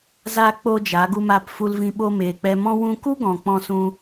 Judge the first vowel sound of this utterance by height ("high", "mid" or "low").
low